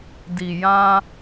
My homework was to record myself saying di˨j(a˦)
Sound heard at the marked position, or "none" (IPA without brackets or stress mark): ã˦